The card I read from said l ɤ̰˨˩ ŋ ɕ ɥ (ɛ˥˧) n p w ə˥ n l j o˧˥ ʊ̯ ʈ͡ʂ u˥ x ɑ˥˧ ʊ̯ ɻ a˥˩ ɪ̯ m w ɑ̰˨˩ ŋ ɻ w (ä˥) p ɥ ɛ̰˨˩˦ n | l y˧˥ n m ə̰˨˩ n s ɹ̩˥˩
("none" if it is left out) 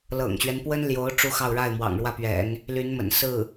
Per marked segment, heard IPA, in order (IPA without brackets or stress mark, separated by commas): ɛ˦, ä˥˩